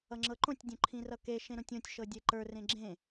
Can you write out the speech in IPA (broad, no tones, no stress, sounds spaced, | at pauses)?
ʌ ŋ͡ǁ ɤ ǃ õ tʲ dʲ õ ǃʰ ĩ r ʌ k e ʃ ẽ ɾ õ tʲ õ tʲ ʃ ɤ dʲ e ǃ ə˞ r ẽ ɡ͡ǁ ẽ